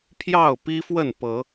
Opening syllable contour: falling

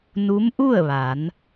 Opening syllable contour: rising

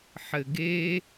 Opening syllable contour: low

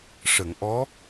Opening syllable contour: low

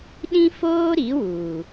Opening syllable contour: high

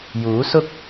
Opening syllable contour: rising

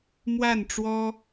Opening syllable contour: falling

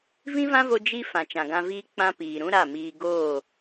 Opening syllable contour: high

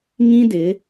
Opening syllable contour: high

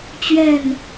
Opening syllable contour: falling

